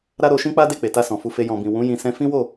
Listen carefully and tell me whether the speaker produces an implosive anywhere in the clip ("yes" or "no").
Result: no